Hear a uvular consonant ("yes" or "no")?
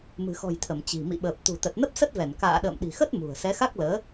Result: no